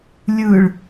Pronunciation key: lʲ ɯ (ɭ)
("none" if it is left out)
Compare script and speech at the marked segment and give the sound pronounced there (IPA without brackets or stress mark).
ɭ